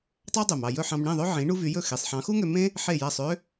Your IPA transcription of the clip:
tˤ ɑ˥ dˤ ø˩ m ɑ˥˩ j ɵ˥˩ ħ ɑ̃˧ m ɳ ĩ˥˩ ðˤ ø˥ ʕ ĩ˩˥ ɳ u˥ v y˩˥ j ɵ˥˩ x i˩ sˤ ħ ɑ̃˩˥ x u˥ ŋ ø˧ m ẽ˥ | ħ e˥˩ j æ˥˩ sˤ ø˥

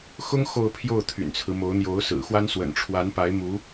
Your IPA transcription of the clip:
x ʊ˥ ŋ x o˥˧ ʊ̯ pʰ j o˥˩ ʊ̯ t̪ʰ y̰˨˩ n t͡sʰ ɹ̩˦ m o˧˥ ʊ̯ n̪ j o˧˥ ʊ̯ s ɹ̩˨˩ x w a˥ n s w ə̰˨˩ n ʈ͡ʂʰ w a˧˥ n p a˧˥ ɪ̯ m u˧˥

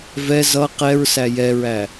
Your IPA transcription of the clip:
v ɛ z ʌ q ɛ ɹ s æ j ɛ ɹ æ

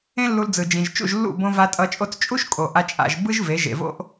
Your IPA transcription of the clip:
ẽ˦ lː u˧ l d͡z ɯ˨ d͡ʒ ĩ˨ ʒ t͡ʃ ṵ˦˨ ʒ lː ṵ˦˨ b õ˧ v a˧ tʼ ʌ˧ t͡ʃʼ o˦˨ t͡s t͡ʃʼ u˦ ʃ kʼ o˨ ʔ a˧ t͡ʃʼ a̰˧ ʒ b ɯ˦ ʒ v e˨˦ ʒ ḛ˨ v o̰˦ ʔ

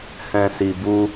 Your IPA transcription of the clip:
h ɛ̃˨ s i˨ b u˧

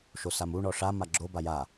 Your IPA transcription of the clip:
ʃ o s a m u ɳ ɔ ʂ a m a ɡ͡ǁ o b a j a

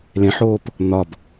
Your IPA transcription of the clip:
l ẽ ħ oː p | n̪ ɒ b

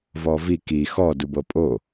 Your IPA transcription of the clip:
v ɔ v i k i x ɔ d u b ɤ pʼ o

